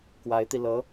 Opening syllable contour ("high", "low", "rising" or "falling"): rising